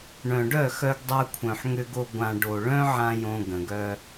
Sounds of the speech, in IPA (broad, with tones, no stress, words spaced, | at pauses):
ɳœ̃˨ ɖœ˦˨xœ˧ɡdˤa˧kʷʰœ̃˨ħ ŋʏ˧ɡo˧ ɡʷã˨ ɖo˨ɭœ̃˦ʕã˧ jõ˧ɡə̃˨ɡœ˧